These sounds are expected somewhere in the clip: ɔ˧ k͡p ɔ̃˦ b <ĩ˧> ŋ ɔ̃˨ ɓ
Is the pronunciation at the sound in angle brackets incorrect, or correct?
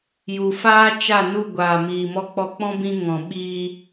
correct